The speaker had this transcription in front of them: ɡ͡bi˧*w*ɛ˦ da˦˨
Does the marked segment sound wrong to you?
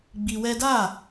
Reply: no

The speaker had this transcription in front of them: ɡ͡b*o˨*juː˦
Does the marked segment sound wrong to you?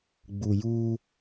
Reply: yes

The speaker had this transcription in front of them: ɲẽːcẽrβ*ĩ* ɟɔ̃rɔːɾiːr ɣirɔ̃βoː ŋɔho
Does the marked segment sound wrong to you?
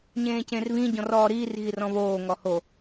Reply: no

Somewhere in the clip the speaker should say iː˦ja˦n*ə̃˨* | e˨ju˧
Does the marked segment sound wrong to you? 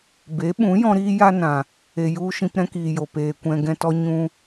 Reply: yes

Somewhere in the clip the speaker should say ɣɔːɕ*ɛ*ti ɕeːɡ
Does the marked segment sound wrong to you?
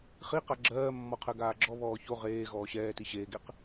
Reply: yes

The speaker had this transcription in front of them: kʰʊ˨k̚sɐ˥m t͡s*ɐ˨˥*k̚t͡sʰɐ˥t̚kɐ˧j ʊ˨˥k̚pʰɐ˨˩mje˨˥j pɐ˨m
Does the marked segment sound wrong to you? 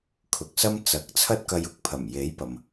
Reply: no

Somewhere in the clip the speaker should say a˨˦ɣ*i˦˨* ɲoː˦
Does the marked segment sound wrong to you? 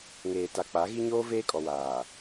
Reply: yes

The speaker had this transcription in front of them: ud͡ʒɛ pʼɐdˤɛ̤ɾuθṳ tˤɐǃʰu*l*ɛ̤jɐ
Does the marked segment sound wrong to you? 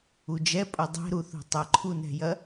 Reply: yes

